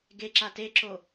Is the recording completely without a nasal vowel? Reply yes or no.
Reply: yes